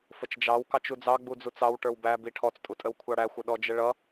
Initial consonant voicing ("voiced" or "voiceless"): voiceless